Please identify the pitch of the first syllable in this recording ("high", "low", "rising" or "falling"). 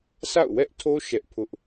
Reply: falling